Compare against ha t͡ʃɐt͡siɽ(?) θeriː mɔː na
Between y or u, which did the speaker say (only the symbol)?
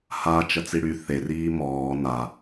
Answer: y